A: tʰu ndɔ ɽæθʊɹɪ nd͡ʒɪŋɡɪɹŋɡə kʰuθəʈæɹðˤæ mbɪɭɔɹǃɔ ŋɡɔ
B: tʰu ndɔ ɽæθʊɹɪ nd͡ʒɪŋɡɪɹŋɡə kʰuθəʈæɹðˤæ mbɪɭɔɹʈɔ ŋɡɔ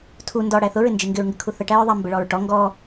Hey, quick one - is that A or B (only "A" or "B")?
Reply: B